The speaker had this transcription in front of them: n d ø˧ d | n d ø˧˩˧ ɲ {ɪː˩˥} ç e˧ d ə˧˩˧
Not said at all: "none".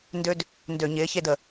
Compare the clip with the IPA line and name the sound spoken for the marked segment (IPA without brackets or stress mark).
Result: ɪː˩˥